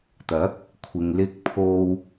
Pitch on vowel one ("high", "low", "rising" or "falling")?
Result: rising